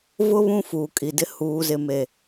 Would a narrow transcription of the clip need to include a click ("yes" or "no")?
no